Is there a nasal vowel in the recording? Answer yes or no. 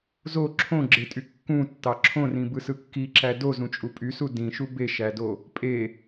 yes